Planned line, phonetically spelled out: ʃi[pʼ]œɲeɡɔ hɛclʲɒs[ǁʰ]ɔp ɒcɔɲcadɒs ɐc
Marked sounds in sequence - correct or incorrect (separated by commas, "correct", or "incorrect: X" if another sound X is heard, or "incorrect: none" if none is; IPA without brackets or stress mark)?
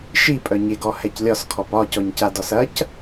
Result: correct, incorrect: kʰ